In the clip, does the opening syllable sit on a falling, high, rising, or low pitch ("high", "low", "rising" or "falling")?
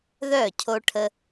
falling